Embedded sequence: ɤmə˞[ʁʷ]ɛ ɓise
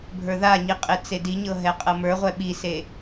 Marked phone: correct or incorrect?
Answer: correct